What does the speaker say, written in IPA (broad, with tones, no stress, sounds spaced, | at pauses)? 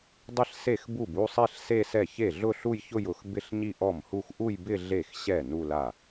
dˤ ɪ˥˩ ɬ s e˥˩ x b u˥˩ b u˥˧ sˤ e˥˧ ɬ s e˥˧ s ɛ˥˩ ç e˥˩ ɮ ʊ˥˧ ɬ u˥˧ j ç ʊ˥˧ j ʊ˥˩ x b ɪ˥˧ ɬ ɲ i˥˧ ʔ ɔ˥˩ m h u˥˧ x ʔ u˥˧ j b ɪ˥˧ ɮ e˥˩ x ɕ ɛ˥˩ n u˥˧ l a˥˩